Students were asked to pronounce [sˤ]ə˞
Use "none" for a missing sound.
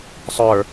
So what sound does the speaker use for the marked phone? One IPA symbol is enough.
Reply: sˤ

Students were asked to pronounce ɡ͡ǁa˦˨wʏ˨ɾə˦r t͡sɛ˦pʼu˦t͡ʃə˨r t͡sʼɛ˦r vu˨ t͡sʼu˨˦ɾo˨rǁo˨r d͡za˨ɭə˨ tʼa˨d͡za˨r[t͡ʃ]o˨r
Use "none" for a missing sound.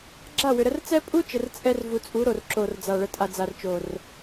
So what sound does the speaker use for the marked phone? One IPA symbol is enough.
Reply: t͡ʃ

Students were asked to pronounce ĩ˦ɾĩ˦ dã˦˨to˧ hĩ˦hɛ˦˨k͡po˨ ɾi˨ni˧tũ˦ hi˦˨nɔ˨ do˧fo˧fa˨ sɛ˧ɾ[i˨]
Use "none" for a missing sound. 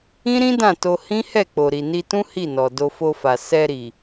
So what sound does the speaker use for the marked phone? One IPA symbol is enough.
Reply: i˨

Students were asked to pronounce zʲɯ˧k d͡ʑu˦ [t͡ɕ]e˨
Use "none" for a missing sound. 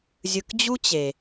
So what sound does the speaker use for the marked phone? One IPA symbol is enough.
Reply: t͡ɕ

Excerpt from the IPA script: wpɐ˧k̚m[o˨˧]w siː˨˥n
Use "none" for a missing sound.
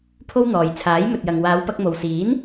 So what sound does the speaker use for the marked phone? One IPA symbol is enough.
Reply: o˨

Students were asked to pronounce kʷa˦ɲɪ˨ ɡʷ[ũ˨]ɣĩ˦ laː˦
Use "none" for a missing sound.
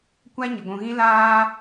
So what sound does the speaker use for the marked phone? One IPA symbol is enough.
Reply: ũ˨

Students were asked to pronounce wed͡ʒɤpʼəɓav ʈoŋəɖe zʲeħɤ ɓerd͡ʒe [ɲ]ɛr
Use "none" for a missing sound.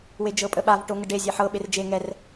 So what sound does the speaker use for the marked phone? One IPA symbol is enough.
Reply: ŋ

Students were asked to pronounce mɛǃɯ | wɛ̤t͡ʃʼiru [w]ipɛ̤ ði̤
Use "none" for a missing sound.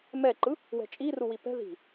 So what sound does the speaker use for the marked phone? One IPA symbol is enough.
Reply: w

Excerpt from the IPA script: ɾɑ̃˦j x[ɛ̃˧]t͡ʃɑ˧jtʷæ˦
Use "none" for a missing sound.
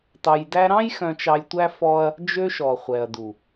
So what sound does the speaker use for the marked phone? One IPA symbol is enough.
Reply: œ̃˧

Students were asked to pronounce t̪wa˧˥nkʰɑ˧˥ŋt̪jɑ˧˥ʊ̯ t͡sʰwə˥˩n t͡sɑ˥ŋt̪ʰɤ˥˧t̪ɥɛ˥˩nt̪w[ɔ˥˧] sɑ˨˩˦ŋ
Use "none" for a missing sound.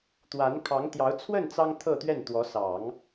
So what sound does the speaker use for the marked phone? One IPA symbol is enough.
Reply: ɔ˧˥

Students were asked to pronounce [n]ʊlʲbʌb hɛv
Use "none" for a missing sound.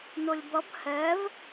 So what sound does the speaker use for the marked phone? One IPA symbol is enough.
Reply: n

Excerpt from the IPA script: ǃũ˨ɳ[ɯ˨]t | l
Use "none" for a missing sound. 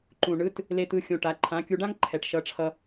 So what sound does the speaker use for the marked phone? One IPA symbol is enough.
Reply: ɯ˨˦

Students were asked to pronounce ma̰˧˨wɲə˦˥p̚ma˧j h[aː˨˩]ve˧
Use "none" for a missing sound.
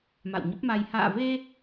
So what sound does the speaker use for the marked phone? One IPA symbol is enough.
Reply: a̰ː˧˨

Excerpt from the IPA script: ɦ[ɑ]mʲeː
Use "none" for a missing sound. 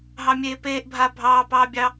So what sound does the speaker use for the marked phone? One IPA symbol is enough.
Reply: ɑ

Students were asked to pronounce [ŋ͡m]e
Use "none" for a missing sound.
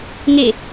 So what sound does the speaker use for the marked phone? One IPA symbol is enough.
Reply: ŋ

